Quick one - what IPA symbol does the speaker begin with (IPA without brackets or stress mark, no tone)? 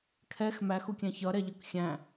kʰ